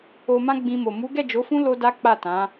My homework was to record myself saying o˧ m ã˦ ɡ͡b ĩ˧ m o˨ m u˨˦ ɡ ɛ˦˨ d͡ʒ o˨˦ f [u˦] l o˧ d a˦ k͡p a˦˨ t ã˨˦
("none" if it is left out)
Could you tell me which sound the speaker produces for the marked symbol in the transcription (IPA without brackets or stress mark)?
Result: ũ˦